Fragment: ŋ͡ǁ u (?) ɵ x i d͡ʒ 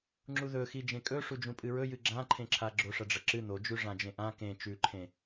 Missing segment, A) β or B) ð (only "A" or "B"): B